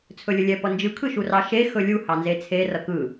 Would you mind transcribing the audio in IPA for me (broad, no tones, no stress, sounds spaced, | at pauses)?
t͡sʰ ɵ lʲ ɵ lʲ ɛ p ʌ n d͡ʒ ɯ kʰ ɯ ʃ u r ɑ ʃ e x ɵ lʲ u h ɑ n z e t͡sʰ e r ʌ k ɯ